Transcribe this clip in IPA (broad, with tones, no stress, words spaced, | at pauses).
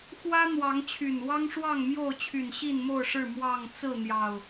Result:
xwä˦ n̪wɑ˨˦ŋt͡ɕʰy˨˩n wɑ˦ŋʂwɑ˥˨ŋmjo˥˨ʊ̯t͡ɕʰy˨˩n ɕi˥˨nmo˥˨ʊ̯ʂɻ̩˥˨ mwɑ˥˨ŋ t͡sɹ̩˥˨n̪jɑ˨˩ʊ̯